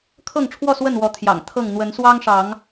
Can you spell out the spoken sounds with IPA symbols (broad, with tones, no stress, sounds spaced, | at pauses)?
kʰ ɤ˥˨ ŋ ʈ͡ʂʰ w ɔ˥˨ s w ə˥˨ n w ɔ˨˦ t̪ʰ j ɑ̰˨˩ ŋ t̪ʰ ɤ˥˨ ŋ n̪ w ə˨˦ n s w ɑ˦ ŋ ʂ ɑ˨˦ ŋ